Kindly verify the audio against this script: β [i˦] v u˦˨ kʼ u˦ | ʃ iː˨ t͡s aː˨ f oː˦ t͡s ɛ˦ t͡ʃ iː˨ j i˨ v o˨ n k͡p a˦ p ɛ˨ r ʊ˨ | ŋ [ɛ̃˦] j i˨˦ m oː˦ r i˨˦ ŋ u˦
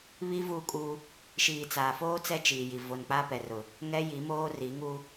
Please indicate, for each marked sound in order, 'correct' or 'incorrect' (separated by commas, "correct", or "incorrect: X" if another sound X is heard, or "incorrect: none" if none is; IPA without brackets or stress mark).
correct, incorrect: ɛ˦